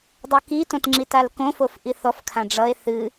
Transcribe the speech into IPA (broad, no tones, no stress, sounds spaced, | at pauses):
dˤ o k i t õ t ŋ͡ǁ i t a l k õ f o f ʔ i θ ɔ f kʰ ã ɖ͡ʐ ʌ e̯ θ ɨ